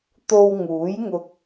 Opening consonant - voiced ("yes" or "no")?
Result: no